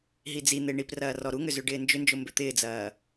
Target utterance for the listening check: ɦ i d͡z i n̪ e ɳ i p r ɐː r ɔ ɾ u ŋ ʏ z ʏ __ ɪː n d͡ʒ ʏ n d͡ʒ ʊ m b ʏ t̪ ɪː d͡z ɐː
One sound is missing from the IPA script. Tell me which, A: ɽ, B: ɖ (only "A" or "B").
B